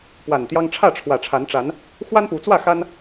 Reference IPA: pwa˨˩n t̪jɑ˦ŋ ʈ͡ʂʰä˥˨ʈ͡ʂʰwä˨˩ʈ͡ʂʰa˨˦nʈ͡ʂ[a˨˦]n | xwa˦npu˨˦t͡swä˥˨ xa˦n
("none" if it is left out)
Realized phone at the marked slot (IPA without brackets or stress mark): a˨˦